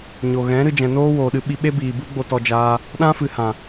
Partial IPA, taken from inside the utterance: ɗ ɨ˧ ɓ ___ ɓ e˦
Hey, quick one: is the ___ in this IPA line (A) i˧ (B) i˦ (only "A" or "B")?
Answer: A